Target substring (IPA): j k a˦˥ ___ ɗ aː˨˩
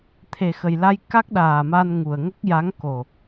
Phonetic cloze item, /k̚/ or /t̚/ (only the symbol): k̚